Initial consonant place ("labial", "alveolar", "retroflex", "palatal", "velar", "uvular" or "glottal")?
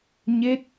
palatal